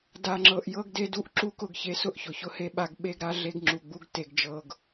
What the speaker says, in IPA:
d a˨ ŋ͡ǁ ɤ˨ ʔ j ɤ˦ ɡ d e˦ d u˦˨ ʔ ǁ u˦ k ʊ˦˨ ɡ ç e˦ s ʊ˦ ʔ ç ʊ˨ ç ʊ˦ h e˦ ɓ a˦ ɡ ɓ e˦ ɡ ɾ a˦ ɮ e˦ ɡ ŋ͡ǁ u˨ ɡ͡b u˦ ɡ t e˨ ɡ d͡ʒ ɤ˨ ɡ

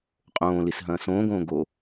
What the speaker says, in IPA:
qʼ õː l i s ɦ ɐ̃ː s õː ɡ õː ɡ o

